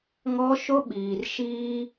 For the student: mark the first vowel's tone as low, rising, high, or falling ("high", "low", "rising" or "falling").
high